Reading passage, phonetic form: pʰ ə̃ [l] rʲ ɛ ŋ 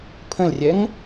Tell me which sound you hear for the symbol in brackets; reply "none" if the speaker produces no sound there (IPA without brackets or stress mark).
l